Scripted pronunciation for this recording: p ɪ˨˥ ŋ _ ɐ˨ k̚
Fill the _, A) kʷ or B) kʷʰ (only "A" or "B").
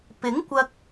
A